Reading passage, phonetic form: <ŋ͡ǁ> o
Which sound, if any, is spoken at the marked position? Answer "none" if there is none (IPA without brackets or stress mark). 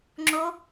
ŋ͡ǁ